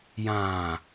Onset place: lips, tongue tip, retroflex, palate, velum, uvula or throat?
palate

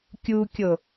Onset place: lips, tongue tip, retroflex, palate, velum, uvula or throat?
velum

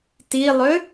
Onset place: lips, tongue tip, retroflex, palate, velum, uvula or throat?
tongue tip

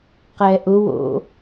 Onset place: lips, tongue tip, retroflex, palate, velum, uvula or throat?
uvula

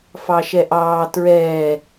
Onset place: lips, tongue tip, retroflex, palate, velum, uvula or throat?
lips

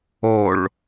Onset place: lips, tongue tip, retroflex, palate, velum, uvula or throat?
retroflex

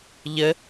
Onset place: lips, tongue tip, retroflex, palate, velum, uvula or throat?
palate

